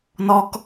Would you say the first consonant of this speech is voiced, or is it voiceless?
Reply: voiced